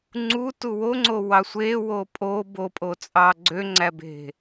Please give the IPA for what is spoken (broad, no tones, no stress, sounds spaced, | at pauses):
ŋ͡ǀ u t u w o ŋ͡ǀ o w ɑ sʷ e w o pʼ o b o pʼ o t͡sʼ ɑ ɡ͡ǀ ø ŋ͡ǀ æ b e̤